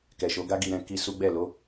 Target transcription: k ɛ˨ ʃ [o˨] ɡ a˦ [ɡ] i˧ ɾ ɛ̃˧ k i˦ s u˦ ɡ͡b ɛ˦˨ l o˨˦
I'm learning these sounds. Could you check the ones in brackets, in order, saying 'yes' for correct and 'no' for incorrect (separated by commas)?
no, yes